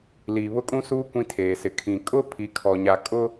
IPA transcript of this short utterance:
l iː˨ β ʊ˦ kʼ ũ˦ s uː˦ kʷ ĩ˦ tʰ eː˨ s ɪ˨ kʰ ĩ˨ kʼ ʊ˦ pʰ i˨ kʰ ɔ˨ ɲ a˨ kʼ ʊ˦

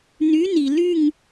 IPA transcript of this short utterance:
n y˨˥ n i˩ l y˥˨ ŋ

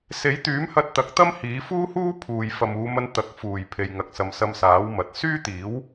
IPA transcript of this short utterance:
s e˨˥ j t̪ yː˨˥ m h ɐ˧ t̚ t̪ ɐ˨˥ k̚ t̪ ɐ˥ m h iː˨˥ f uː˥ h uː˥ pʰ uː˨ j f ɐ˨ m uː˨˧ m ɐ˧ n t̪ ɐ˨ k̚ f uː˨˩ j pʰ e˨ j ŋ ɐ˨ k̚ s ɐ˨ m s ɐ˧ m s aː˨˥ w m ɐ˨ t̚ s yː˥ t̪ iː˨˥ w

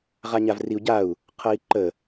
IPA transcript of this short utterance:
ʁ a ɲ a v r i u̯ ɟ a u̯ | qʰ ʌ i̯ ǃ ə

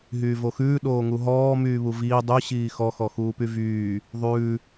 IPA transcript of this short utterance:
ɦ yː v o x ʉː ɗ oː ŋ u ɦ ɔː m yː β u v iː dˤ y ɕ iː x ɔ x ɔ x uː p y v yː | ðˤ ʉː

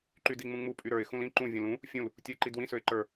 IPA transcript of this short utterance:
ǃ y d i ŋ͡m ũ ŋ͡m u pʼ y ɾ ə˞ ɪ̯ x ũ l ĩ ǃ ũ vʲ ũ l ũ | fʲ ũ l | tʲ u ɪ̯ ǃ i d w ĩ s ø ɪ̯ ǃ ə˞

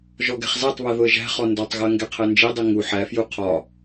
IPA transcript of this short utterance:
ʒ ɔ ɡ ɛ̤ χ z æ tˤ β ɜ ð ʊ ə̯ ʒ æ̤ χ ɔ n d ɔ tˤ ɣ ɜ ŋ ɡ ɛ qʰ ɜ n d͡ʒ i dˤ i ŋ u ħ æ f j u qʰ ɒ

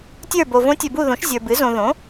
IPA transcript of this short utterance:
tʲ ə˞˦˨ b o˨ v õ˧˥ tʲ ə˞˨ b u˦˨ ð õ˩˥ ʃ zʲ ə˞˨ b ɨ˩˥ z õ˨ ð õ˩˥

